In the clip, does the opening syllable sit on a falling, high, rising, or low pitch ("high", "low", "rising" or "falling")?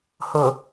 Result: low